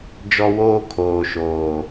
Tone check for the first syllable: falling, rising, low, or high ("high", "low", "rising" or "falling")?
high